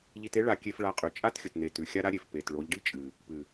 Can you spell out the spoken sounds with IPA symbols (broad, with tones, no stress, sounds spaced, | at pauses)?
ʎ i˧ t e˦ ɭ a˧ kʲ e˧ f ɭ a˧ qʼ ʉ˨ t͡ʃʼ a˦ t xʲ ɵ˨ t n e˨ t ʉ˨ xʲ a˦ ɾ a˦ ɾʲ e˨ f p e˨ t ɭ o˨˦ ʎ ɖ i˦ t͡ʃʼ ɨ˨ | p ɨ˨